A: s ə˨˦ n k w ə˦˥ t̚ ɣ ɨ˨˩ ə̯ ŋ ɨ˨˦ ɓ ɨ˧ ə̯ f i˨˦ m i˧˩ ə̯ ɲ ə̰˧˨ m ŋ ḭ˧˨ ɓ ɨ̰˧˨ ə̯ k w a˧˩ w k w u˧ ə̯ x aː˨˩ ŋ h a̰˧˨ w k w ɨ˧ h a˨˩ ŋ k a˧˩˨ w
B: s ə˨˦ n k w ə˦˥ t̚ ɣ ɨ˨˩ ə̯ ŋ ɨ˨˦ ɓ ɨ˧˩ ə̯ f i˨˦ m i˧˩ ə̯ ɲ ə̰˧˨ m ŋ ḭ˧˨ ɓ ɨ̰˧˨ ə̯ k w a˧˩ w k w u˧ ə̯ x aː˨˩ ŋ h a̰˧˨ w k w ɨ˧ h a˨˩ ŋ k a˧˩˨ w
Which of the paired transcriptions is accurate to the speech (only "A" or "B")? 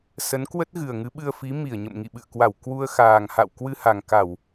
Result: A